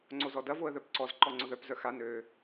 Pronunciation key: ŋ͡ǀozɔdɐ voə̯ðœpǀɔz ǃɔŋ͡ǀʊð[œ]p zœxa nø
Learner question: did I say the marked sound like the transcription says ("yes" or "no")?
yes